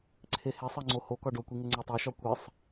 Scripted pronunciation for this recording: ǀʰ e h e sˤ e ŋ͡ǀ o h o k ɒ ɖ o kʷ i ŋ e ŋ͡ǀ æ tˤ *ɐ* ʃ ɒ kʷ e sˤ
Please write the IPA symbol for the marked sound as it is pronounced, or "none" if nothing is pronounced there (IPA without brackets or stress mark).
æ